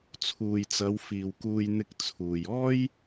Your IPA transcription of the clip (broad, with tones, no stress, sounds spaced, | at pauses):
t͡sʰ uː˨ j t͡s ɐ˨˧ w f iː˨ w k uː˧ j n̪ ɪ˧ k̚ t͡sʰ uː˨ j ɔː˥ j